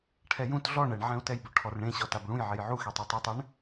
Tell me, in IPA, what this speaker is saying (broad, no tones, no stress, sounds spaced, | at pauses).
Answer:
ʈʰ ɛ j ũ t ɮ ɔ ɳ ɛ ɳ ʕ ɛ̃ u̯ t ɛ j b o ʈʰ ɔ r ɳ ẽ ɕ ɔ t a b ɭ ũ j ʕ e j ʕ u x e tˤ e tˤ u tˤ ɛ ɳ